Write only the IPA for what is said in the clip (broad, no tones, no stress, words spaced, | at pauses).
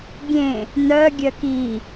ɡʲẽ | nœɡʲœk i